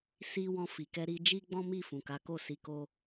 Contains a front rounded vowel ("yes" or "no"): no